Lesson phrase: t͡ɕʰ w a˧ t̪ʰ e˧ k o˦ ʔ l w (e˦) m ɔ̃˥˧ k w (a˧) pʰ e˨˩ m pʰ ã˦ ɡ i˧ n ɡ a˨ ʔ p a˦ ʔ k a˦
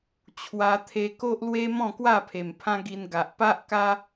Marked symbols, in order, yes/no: yes, no

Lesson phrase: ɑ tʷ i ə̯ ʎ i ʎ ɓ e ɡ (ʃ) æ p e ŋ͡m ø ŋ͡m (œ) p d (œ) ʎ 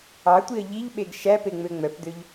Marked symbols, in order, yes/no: yes, yes, no

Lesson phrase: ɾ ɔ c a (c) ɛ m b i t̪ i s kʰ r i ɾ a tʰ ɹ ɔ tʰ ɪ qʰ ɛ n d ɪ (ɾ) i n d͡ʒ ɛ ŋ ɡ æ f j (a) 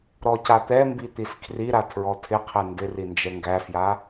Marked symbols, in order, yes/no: no, no, yes

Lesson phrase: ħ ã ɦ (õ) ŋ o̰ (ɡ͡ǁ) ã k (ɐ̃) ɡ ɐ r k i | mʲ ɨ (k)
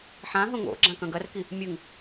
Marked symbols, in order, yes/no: yes, yes, yes, no

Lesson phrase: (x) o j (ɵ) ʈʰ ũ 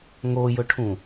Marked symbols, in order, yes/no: no, yes

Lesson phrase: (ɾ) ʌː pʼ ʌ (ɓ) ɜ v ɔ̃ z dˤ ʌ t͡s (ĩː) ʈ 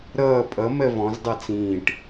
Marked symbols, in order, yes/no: yes, no, yes

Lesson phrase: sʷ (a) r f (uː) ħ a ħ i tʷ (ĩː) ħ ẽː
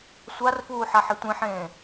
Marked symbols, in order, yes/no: yes, yes, no

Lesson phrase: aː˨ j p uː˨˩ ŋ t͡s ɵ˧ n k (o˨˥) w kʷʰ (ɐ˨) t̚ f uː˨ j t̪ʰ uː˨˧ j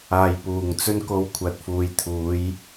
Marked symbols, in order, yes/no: no, yes

